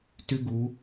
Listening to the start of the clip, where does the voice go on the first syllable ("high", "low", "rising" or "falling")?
high